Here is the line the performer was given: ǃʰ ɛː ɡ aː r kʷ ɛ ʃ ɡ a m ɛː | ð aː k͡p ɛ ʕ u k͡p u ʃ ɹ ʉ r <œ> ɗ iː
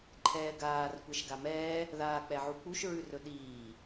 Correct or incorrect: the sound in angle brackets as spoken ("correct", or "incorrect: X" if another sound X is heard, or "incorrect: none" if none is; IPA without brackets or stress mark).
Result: incorrect: ɵ